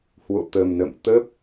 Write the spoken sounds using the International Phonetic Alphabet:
hwo̰˧˨t̪ə˨˩mnə̰˧˨m t̪ə˦˥p̚

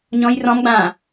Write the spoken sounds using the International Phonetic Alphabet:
ɲɔ̃j rɔ̃mɡ͡bãː

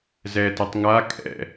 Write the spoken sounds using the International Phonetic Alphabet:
zɛtɛtˤ ŋa kʼɛ̰

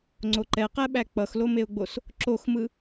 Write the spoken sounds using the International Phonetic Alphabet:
ŋ͡ǀoǃɛqɛɓæ k͡pʌxlomeʊ̯ɡ͡bos | ǁoxmɯ

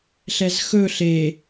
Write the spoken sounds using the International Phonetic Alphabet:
ɬɛzxɵ ɬe

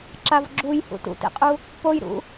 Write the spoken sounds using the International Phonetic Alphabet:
ǁavɡ͡ǁuj hṵtṵtḛqʼu | pojɾṵ

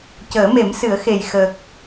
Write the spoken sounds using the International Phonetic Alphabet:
cəː˨˩˦me˨˩˦msɨ˨˩˦ə̯xe˨˩j xə˨˩k̚

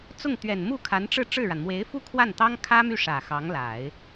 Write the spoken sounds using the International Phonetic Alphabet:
t͡sʊ˥˩ŋt̪ɥɛ˨˩n mu˥˩kʰa˧˥nʈ͡ʂɻ̩˥˧ ʈ͡ʂɻ̩˥˩ɻa˩n mwe˧˥ɪ̯fu˥kʰwa˥˩n t̪ɑ˥ŋkʰä˥my˥˩ ʂä˨˩xɑ˧˥ŋla˨˩˦ɪ̯

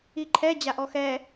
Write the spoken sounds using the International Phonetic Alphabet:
iǃʰɛ d͡ʑaʔɔxɛ

